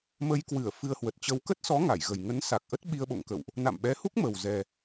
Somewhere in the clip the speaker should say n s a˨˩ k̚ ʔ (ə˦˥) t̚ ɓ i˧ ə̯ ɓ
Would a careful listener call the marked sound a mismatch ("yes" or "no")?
no